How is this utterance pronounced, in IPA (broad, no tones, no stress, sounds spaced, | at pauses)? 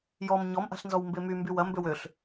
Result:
j ɔ m ɲ ɔ m ʔ a̤ ɬ n z ɔ w m b e m y m b y w ɐ m b ø w ø ɬ